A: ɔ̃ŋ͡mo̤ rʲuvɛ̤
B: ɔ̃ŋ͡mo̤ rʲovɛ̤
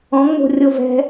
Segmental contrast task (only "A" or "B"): B